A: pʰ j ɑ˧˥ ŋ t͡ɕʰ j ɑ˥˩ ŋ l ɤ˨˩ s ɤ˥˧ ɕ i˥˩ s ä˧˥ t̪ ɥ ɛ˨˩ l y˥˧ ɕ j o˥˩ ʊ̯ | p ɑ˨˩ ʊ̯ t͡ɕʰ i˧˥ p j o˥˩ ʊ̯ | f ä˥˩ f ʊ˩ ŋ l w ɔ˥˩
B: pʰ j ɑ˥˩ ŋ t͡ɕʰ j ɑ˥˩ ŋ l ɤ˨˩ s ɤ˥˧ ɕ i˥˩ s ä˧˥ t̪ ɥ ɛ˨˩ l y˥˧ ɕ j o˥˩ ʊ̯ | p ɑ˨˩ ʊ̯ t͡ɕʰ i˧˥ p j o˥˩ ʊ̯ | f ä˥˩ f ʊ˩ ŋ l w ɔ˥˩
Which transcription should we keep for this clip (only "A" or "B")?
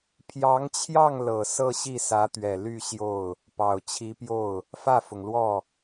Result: A